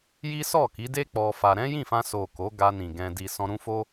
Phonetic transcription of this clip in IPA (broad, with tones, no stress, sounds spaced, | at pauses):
j i˦ s ɔ˦˨ k i˨˦ d e˦ k͡p ɔ˧ f a˧ ɾ ɛ̃˦ j ĩ˦˨ f ã˧ s o˨ k o˨˦ ɡ a˧ n ĩ˨ ɡ ɛ̃˧ d i˧ s ɔ̃˧ ɾ ũ˦ f o˦